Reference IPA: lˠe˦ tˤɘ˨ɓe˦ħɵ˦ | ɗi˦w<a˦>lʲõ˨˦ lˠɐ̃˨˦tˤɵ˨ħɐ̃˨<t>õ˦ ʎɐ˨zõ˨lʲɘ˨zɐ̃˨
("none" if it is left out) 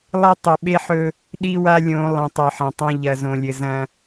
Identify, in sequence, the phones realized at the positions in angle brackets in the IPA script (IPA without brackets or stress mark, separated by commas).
a˦, tˤ